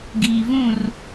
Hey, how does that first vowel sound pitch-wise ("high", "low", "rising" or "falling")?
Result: low